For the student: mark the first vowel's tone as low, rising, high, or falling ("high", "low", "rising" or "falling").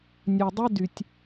low